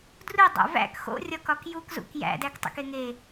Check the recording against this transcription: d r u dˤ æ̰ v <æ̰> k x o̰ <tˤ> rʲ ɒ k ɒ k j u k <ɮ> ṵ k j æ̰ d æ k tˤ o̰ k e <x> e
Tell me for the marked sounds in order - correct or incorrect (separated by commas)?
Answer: correct, incorrect, incorrect, incorrect